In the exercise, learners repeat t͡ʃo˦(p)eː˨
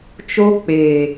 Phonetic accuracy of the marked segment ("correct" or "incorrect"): incorrect